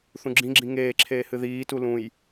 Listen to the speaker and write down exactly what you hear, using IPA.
θũɡ͡ǁĩɡ͡ǁĩ ŋeːǁʰeː hɨðiːtu lũj

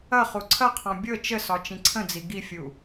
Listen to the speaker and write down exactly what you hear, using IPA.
ɐ χuǀʰɐqʰɔ̃ bʲɤ t͡ʃəsɒ t͡ʃĩǀʰə̃d͡zi ɡifʲu

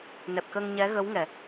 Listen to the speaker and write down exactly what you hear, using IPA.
nɛ˨˩p̚kə˧ŋɲɛ˧˥ ɣə˧˥wŋɛ˨˩˨

